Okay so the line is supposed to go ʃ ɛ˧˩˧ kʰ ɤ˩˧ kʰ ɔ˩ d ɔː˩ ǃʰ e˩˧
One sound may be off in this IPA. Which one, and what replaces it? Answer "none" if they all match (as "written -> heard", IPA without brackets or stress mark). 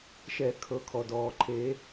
none